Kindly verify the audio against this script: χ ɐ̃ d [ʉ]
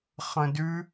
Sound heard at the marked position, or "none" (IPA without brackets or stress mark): ʉ